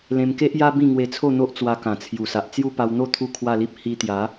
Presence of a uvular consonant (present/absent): absent